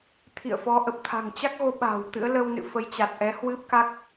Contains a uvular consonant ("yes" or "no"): no